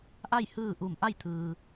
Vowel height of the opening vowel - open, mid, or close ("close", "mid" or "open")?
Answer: open